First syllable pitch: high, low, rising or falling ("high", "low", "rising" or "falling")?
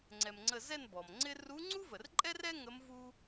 low